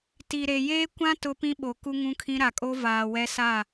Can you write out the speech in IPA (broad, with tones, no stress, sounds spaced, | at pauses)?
t i˨ ɾ e˨ j eː˦ kʷ ã˦ t ʊ˦ p ĩ˦ ɓ o˨ k u˦ ŋ ũ˦ kʰ ĩ˦ ɾ a˨ kʼ o˦ v aː˨ w ɛ˦ s a˦˨